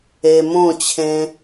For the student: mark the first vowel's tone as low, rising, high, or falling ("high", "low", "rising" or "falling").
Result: low